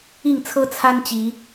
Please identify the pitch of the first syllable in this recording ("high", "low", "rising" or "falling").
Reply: falling